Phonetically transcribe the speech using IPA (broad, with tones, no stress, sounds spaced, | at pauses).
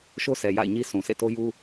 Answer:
ʃ o˦ s ɛ˨ j a̰˦˨ ɪ̯ ɲ i˦ sʰ ũ˨ sʰ ḛ˦˨ t o˦ j u˦